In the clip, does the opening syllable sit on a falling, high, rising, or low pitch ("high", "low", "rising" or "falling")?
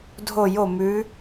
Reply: falling